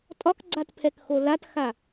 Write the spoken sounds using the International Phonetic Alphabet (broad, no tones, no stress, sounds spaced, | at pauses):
tʼ ɒ k ɡ͡ǀ a t pʰ ɛ k x o l a t x a